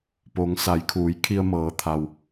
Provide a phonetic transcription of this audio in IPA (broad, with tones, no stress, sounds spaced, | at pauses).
p o˩˧ ŋ s a˩˧ j kʰ uː˩˧ j kʰ i˧ ə̯ m ɤː˩˧ t̪ʰ a˩ w